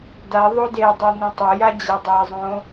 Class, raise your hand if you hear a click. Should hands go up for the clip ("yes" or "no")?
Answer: no